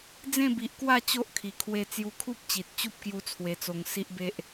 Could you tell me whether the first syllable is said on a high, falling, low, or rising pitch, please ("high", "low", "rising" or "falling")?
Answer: falling